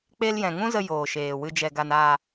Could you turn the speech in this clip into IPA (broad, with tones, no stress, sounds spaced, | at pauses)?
k͡p e˧ l j ɛ̃˨ ŋ ũ˦ z ə˧ j oː˨ ʃ eː˨ w ɨ˧ d͡ʒ ɛ˨ ɡ a˨ n a˨